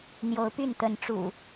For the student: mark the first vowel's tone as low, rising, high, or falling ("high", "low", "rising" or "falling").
rising